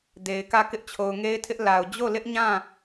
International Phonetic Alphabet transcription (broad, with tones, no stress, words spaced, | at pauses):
de˨ɪ̯kä˦˨ kɪ˦ʔt͡ɕʰo˨ʊ̯ŋe˦ɪ̯tʰɪ˦ʔ la˨ʊ̯ d͡ʑo˦˨lɪ˦ʔɲã˦˨